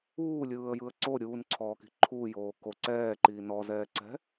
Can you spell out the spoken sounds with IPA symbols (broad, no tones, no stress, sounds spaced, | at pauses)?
uː lʲ ɯː ə̯ j ɯ ə̯ ǀ o ɾʲ uː n ǀʰ ɔː k i̤ ǃʰ uː j oː k o ǀ ɛː ǃ iː n ɔ z ɛː ǀ ɛ̤